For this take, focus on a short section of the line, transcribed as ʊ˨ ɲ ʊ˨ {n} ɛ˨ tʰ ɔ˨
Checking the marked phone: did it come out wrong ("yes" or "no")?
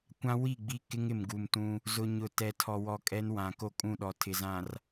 yes